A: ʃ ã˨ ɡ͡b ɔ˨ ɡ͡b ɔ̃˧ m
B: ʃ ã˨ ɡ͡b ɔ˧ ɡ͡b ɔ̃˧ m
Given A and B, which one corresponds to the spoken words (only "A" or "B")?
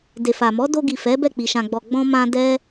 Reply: A